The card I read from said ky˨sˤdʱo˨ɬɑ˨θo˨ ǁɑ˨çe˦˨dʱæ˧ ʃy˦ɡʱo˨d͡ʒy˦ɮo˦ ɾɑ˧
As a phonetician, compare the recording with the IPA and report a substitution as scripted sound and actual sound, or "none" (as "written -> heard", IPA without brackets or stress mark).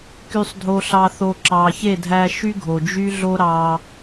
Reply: none